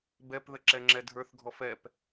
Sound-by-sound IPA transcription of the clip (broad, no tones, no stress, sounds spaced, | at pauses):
b ɛ p ð ə ǁ ɛ ŋ͡ǁ ɛ dʱ ə˞ θ ɡʱ ɔ f ɛ p